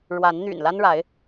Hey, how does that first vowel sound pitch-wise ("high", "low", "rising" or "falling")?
rising